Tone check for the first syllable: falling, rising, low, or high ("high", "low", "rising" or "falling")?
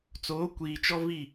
rising